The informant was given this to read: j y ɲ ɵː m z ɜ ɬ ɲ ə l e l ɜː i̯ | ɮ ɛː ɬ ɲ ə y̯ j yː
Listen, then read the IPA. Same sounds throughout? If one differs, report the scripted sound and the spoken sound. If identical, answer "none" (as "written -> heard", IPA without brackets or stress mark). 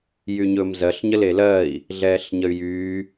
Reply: none